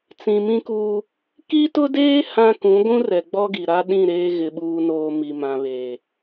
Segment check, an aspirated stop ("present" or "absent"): absent